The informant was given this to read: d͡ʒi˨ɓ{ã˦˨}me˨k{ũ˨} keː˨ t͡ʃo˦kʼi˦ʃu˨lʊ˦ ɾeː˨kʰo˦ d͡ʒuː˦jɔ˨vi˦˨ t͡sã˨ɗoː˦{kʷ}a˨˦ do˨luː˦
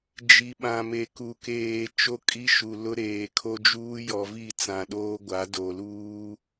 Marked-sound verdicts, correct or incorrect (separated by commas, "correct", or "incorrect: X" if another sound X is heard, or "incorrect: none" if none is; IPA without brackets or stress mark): incorrect: ã˨, incorrect: u˨, incorrect: ɡʷ